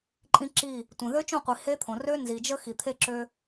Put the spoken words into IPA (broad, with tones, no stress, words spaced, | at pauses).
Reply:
ǃʼĩ˦ǁi˦˨ | tʷẽ˨ðø˦t͡ʃõ˦˨qʷi˨ he˦t̪ʰõ˨ rø˦ nzi˨d͡ʒə˦ xi˨t̪ʰe˦ǁø˦